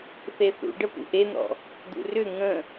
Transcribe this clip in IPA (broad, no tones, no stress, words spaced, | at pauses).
θeθṵ ɖəpṵʔen̪ɔ̰ | d̪ṵrʏ ŋə̃